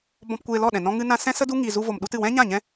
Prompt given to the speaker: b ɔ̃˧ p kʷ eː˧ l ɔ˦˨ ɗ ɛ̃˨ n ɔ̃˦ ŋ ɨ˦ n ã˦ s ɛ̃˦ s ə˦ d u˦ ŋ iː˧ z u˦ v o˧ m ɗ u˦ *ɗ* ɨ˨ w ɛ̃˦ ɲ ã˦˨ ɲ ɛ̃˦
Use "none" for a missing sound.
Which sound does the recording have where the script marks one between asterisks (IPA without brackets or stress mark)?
t